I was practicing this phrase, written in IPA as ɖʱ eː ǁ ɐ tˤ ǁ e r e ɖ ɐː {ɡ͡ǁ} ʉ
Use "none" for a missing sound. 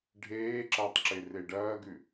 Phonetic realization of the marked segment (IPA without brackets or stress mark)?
ɡ